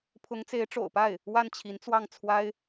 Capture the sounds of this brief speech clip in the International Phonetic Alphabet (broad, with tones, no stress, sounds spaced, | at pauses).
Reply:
pʰ ʊ˧˥ ŋ t͡s e˧˥ ɪ̯ ʈ͡ʂ o̰˨˩ ʊ̯ p a˥˩ ɪ̯ | w a˥˩ n t͡ɕʰ i˧˥ n t͡s w ɑ˥˩ ŋ t͡sʰ w a˥ ɪ̯